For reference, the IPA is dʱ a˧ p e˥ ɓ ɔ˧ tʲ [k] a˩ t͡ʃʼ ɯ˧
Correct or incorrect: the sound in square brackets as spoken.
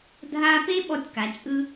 correct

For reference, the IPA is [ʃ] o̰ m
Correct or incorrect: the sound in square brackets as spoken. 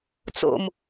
incorrect: t͡s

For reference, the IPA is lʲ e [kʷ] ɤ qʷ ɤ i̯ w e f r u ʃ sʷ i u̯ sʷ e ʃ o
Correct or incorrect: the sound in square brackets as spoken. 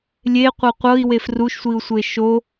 incorrect: qʷ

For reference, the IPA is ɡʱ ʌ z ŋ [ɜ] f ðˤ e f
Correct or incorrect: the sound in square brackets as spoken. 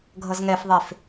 incorrect: ɛ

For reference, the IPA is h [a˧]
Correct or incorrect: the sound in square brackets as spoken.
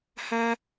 correct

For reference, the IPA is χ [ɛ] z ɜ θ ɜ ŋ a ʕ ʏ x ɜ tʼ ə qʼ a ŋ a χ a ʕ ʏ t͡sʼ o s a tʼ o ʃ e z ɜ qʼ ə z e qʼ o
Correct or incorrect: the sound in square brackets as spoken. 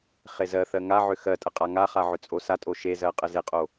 incorrect: e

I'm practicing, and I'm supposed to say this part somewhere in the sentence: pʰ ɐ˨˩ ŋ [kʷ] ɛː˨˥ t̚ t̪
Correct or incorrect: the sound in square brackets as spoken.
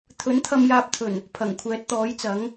incorrect: kʷʰ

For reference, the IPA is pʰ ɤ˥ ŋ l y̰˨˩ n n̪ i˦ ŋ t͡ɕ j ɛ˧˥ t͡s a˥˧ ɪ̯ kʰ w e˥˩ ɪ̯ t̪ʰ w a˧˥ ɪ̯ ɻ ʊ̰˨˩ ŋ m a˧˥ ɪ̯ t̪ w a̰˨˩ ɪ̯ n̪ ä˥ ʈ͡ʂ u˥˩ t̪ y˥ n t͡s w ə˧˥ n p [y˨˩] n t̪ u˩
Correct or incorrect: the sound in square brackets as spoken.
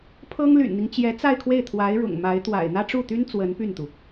incorrect: y˥˩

